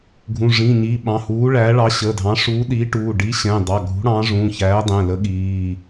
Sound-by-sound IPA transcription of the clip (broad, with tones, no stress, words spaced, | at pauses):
ɡʱũ˩˧˩ʐĩ˩˧˩ɲi˩˧˩ ɓɑ̃˩˧˩huː˨˥ɭæː˨˥ɭɑ˨˥ ɕə˩˧˩dʱɑ̃˨˥ ʂuː˨˥ ɗiː˨˥ʈuː˩˧˩ ɖiː˨˥ɕɛ̃ː˩˧˩dˤɑ˩˧˩ ɡʱṳ˨˥ɽɑ̃˨˥ʐũ˩˧˩ çæː˨˥dˤɛ̃˩˧˩lə˨˥ ɠiː˩˧˩